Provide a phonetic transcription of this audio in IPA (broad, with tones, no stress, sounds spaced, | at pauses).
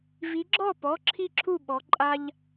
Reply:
v i˨˦ ɡ͡ǁ ɔ˥˨ p ɔ˩˧˩ ǁʰ i˥˨ ǁʰ u˥˨ ɓ ɔ˨˦ ǃʼ a˥ ʎ